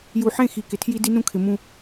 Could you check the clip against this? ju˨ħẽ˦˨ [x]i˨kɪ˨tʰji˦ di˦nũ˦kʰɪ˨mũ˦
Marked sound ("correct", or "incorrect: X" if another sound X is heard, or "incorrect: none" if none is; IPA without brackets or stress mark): correct